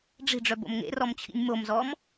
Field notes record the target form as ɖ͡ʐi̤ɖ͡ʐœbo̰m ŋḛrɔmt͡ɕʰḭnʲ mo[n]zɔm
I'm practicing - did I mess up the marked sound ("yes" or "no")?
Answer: yes